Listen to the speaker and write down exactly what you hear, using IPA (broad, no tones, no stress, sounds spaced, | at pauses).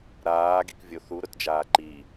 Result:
ɾ aː ɡ i k vʲ o θ u ɾ ʊ t d͡ʒ aː ǃ i